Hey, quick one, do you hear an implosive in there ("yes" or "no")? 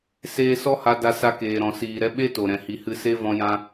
yes